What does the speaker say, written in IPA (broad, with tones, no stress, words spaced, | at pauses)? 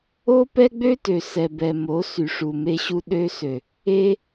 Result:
o˦pɛ˦ɡ͡bø˦tø˨ sɛ˨bɛ˨mo˨˦ sy˨ʂu˨me˧ɕu˧ ɗø˧sø˨ | e˧